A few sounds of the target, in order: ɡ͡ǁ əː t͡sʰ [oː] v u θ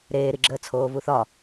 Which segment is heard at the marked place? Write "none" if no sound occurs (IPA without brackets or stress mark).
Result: oː